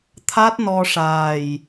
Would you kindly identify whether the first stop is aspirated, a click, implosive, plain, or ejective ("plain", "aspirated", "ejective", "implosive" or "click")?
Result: aspirated